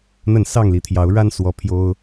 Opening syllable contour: falling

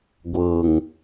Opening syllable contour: low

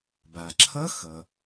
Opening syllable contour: low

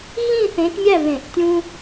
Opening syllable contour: falling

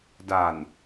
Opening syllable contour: low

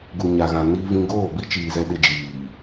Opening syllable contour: low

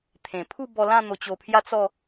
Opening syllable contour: low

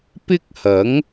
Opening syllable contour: high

